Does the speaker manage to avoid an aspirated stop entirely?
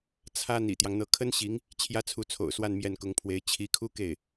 no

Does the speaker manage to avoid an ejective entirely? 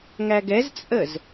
no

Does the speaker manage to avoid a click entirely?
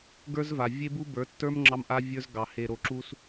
no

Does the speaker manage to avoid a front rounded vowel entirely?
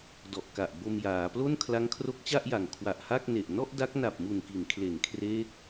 yes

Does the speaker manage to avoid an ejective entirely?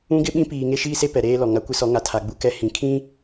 yes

